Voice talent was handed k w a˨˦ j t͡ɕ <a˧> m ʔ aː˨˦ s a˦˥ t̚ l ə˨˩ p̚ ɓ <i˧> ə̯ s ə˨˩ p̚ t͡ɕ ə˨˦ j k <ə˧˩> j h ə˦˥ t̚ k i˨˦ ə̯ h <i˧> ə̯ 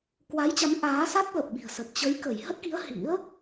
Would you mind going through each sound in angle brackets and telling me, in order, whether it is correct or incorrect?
incorrect: a˨˦, incorrect: i̤˨˩, correct, incorrect: ḭ˧˥

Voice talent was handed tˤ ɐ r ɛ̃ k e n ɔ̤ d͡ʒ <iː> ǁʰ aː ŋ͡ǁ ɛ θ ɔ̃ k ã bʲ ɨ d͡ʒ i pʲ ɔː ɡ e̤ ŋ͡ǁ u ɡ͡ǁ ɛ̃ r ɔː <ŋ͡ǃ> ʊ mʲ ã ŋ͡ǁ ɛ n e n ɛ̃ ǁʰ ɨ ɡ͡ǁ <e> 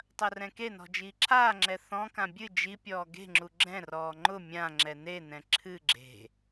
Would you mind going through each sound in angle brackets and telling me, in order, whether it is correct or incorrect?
correct, correct, incorrect: e̤

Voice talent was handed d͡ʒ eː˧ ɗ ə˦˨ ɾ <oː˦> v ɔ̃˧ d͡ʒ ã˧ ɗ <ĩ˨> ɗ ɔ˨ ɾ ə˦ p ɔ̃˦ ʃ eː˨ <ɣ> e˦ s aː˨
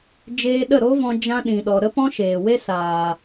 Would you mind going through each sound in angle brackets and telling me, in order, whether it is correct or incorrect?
incorrect: o˦, correct, incorrect: w

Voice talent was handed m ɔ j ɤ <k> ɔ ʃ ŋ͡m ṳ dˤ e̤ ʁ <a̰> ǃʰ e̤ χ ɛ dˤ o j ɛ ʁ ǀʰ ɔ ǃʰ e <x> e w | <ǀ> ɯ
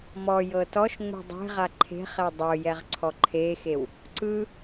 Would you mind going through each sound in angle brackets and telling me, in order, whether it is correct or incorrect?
incorrect: t, incorrect: a, correct, correct

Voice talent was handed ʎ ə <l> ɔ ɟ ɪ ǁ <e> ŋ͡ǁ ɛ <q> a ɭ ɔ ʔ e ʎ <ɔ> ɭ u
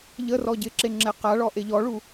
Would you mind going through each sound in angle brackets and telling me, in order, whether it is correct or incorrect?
incorrect: r, correct, correct, correct

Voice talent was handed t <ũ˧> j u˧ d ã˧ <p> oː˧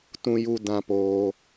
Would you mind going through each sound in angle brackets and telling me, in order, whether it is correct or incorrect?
correct, correct

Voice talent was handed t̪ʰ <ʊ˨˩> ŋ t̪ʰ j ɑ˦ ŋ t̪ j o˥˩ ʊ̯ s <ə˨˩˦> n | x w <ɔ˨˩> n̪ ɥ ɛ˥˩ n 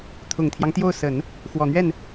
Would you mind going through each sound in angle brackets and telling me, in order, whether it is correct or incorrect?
correct, correct, correct

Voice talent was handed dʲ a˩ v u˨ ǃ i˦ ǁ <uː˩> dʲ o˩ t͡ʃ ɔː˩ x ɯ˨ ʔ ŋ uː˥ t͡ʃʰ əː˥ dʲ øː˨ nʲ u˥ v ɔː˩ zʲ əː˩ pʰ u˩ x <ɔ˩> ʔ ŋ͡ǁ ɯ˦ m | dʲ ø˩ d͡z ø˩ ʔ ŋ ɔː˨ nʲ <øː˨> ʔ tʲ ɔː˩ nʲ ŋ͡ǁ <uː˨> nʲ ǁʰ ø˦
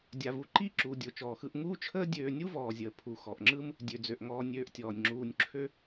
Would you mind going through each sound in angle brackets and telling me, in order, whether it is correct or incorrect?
correct, correct, correct, correct

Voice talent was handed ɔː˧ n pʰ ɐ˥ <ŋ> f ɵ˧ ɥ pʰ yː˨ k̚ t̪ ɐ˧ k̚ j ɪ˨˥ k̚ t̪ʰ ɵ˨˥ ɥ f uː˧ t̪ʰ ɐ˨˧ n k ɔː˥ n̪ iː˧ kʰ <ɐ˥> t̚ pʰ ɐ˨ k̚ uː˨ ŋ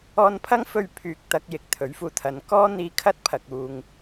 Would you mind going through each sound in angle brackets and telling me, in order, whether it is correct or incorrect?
correct, correct

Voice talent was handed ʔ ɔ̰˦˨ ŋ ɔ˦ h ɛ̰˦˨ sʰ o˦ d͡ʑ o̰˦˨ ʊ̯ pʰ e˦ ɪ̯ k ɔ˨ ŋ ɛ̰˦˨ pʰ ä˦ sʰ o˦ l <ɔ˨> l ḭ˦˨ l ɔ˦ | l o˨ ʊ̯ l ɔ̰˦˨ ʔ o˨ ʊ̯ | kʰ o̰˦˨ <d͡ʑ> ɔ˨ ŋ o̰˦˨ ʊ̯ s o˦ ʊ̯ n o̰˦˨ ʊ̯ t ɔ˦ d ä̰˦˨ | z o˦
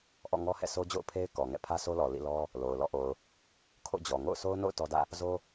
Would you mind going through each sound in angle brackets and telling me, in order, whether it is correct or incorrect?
correct, correct

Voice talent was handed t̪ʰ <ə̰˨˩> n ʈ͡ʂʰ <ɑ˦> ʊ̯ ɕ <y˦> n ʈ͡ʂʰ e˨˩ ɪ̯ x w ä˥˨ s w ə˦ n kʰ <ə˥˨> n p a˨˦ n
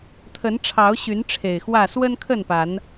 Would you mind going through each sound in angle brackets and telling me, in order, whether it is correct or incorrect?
incorrect: ə˨˦, incorrect: ɑ˨˦, incorrect: y˨˦, correct

